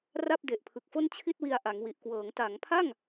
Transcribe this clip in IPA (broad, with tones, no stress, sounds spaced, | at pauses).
r a˥˩ p̚ d e˨˩ ʔ pʰ ɯ˨˩ k̚ f o˥˩ n t͡ɕʰ i˥˩ t̚ w i˧ a̯ ʔ a˩˦ ŋ w i˨˩ ʔ k w ɤː˩˦ ŋ t a˩˦ ŋ pʰ a˥˩ ŋ